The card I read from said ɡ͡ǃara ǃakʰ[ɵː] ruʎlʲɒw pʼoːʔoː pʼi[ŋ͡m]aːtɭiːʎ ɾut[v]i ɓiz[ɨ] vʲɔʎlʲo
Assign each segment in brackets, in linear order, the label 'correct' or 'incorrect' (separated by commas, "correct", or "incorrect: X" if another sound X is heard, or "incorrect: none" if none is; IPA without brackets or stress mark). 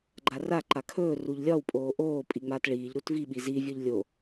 correct, correct, correct, incorrect: i